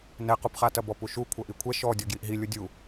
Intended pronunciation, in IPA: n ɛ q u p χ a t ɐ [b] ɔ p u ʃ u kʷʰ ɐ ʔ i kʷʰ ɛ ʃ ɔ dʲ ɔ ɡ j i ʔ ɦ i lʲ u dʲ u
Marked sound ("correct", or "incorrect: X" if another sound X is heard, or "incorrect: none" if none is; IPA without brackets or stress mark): correct